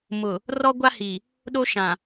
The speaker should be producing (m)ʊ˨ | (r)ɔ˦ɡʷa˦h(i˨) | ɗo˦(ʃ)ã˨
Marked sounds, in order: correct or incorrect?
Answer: correct, correct, correct, correct

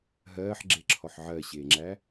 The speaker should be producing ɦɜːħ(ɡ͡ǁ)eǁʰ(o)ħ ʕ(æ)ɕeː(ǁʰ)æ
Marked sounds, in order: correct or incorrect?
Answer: correct, incorrect: ɔ, incorrect: ɜ, incorrect: ŋ͡ǁ

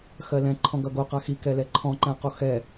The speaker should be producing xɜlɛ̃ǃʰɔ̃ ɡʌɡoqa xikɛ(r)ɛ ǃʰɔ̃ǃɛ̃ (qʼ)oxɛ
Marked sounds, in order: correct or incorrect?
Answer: incorrect: l, incorrect: q

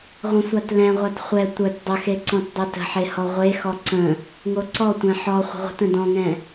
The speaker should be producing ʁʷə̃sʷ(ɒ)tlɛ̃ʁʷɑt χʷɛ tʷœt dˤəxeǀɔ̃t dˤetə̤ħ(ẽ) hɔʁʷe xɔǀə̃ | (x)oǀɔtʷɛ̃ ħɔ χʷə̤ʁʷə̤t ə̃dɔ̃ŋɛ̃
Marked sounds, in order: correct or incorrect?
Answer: incorrect: ɑ, incorrect: e, incorrect: ŋ

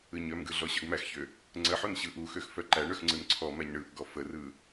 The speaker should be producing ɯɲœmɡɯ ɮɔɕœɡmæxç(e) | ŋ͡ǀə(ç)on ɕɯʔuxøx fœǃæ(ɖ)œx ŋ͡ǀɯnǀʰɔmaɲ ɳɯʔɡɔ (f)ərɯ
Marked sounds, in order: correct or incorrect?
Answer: incorrect: ø, incorrect: ħ, incorrect: ɳ, correct

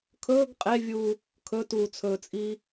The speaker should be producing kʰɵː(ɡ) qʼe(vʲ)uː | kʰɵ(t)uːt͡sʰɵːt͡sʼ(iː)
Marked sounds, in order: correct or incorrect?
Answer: correct, correct, correct, correct

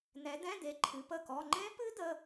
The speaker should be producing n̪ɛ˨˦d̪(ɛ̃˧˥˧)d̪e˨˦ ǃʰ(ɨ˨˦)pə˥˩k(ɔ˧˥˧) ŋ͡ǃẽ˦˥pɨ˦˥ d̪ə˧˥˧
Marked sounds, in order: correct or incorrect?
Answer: correct, correct, correct

